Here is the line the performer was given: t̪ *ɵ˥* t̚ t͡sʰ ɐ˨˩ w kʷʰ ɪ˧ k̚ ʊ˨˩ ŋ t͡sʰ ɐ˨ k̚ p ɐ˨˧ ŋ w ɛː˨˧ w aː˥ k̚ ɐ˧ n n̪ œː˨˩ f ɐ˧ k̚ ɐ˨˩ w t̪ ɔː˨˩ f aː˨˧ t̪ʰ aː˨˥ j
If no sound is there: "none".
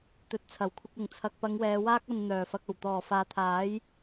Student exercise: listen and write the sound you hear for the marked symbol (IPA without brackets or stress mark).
ɵ˨